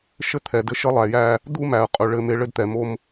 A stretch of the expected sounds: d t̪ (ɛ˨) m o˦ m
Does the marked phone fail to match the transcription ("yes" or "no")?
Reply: no